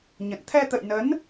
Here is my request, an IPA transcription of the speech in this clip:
ɲ ə̰˧˨ n t̪ʰ ɛ˧ t̪ ə̰˧˨ j n ə˨˦ n

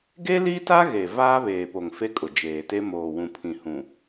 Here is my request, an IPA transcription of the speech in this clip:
ɡ e˦ l i˦ t a˦ ɣ e˨ v aː˦ β eː˨ p o˨ ŋ f e˦ kʼ ʊ˨ d͡ʒ eː˨ t e˦ m oː˨ w ũ˨ pʰ ĩ˨ h ũ˨

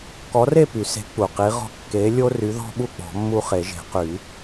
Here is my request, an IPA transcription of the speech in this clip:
k ɔ˨˥ r e˥˨ p y˨˩˦ s e̤˨˥ k͡p u˨˩ q i˨˥ ʁ ɔ̤˦ kː e˨˥ lʲ o˦ r y˨˥ ð ɔ̤˦ ɓ u˥˨ k͡p ɔ̤˨˩˦ mː u˦ χ e˨˩˦ ʒ e̤˨˩˦ q y˨˩˦

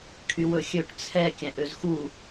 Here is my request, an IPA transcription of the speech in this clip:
kʰ y w ɵ xʲ ø ʈ t͡sʰ ɛ kʲ æ̃ ʔ ø z x u

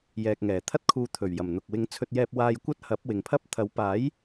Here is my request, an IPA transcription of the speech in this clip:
j ɛː˨ k̚ ŋ ɛː˨˩ t̪ʰ ɐ˥ t̚ kʰ uː˧ t̪ʰ ɵ˨˩ ɥ j ɐ˨˩ m n̪ ʊ˨ k̚ w ɪ˨˧ ŋ t͡sʰ ɵ˧ t̚ j ɛː˧ p̚ w aː˧ j kʷ ɐ˥ t̚ h ɐ˨˥ p̚ w ɪ˨ ŋ pʰ ɐ˥ p̚ t̪ʰ ɐ˨˥ w p aː˨˥ j

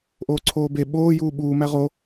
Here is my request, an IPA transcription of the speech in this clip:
ʔ oː ǀʰ oː b e ɓ oː j uː ɓ uː m æ ʁ o

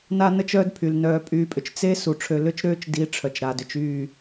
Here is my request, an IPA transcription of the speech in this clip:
n a˦ n ə˦ t͡ʃ œː˦ d pʰ y˨ l n œː˧ pʼ yː˧ pʼ ʏ˨ t͡ʃ t͡s e˦ s u˨ ʈ͡ʂʰ ø˧ l ʏ˦ t͡ʃ ɾ øː˦ t͡ʃ d i˨˦ ʈ͡ʂʰ œ˨ t͡ʃ ɾ a˨ d ʏ˧ t͡ʃ yː˦˨

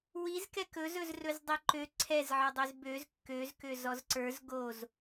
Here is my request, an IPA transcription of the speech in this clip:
w i z k ɛ k ɵ z ɵ z r ɵ z dˤ i ǃ ø ǀʰ ɛ z ʕ ə˞ dˤ ø z b ø z kː ø z k ø z ɔ z ǀ ə˞ z ɡ o z

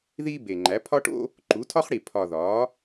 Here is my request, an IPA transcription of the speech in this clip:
ð iː˥ b e˨˩ ŋ͡ǃ æ˩˥ pʰ ɒ˥ ʈ o̰˥ | ǃ u˩˥ tʰ ɒ˥ χ ɽ i˨˩ pʰ ɒ˨˩ ð ɒː˩˥

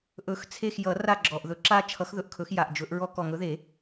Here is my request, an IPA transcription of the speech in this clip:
ʔ ɵ˨˩˦ x t͡sʰ e˦˨ x j ʌ˨˩˦ r a˦˨ ɡ͡ǁ ɔ˨˩ ʔ ð ɵ˨˩ ǁ a˦ t͡ʃʰ ʌ˨˦ x ð ɵ˨˩ ʔ kʰ ɵ˨˩˦ x j a˨˩ ʔ d͡ʒ ɵ˨˦ ʔ ɹ ɔ˦ k ɔ˨˩ ŋ ɵ˨˦ ð e˨˩˦

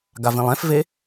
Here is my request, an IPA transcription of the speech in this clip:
ɡ a v ĩ lˠ ɛ̃ f v e

